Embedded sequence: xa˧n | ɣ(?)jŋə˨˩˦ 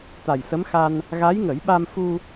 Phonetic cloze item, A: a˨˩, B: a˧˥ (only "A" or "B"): B